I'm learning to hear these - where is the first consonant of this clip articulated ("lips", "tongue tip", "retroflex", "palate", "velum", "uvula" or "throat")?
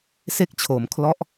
tongue tip